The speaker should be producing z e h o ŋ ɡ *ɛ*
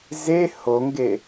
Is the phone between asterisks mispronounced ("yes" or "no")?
yes